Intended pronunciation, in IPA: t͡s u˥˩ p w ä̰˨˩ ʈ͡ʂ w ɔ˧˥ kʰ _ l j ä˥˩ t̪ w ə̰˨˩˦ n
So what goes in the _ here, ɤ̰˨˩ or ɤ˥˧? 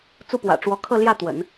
ɤ˥˧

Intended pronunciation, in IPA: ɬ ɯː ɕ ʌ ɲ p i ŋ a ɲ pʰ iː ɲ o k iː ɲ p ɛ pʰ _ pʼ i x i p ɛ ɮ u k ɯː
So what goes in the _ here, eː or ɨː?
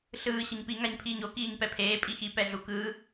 eː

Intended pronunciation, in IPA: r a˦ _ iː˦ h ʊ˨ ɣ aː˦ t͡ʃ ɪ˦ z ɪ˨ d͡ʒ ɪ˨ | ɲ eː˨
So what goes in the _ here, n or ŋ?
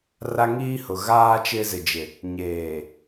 ŋ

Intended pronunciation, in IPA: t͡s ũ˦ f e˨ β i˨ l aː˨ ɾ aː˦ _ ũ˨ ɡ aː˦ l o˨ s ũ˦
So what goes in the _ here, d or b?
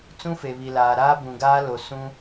b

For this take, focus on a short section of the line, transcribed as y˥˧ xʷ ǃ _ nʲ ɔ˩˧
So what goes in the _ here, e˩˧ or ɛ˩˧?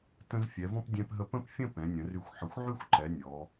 ɛ˩˧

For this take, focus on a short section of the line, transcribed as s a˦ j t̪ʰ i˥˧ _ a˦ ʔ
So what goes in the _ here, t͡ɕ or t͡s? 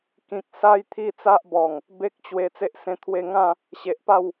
t͡s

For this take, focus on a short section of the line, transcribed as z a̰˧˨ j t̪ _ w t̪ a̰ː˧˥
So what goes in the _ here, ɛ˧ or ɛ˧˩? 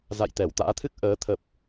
ɛ˧˩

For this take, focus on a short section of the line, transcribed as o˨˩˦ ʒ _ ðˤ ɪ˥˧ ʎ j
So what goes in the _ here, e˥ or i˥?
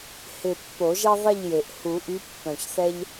e˥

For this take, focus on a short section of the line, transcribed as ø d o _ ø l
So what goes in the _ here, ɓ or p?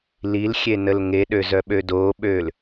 ɓ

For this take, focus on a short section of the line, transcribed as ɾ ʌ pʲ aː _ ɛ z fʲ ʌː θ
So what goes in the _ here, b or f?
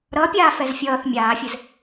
f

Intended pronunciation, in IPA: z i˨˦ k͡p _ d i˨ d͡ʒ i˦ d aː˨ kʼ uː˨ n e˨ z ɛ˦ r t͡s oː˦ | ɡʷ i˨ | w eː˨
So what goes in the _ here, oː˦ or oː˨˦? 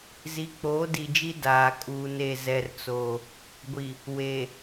oː˨˦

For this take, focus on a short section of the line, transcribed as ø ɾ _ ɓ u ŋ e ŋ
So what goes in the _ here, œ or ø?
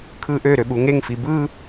ø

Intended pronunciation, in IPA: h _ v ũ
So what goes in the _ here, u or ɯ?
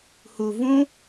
u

